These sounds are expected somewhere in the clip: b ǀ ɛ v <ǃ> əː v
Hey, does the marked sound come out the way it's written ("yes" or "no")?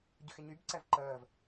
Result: yes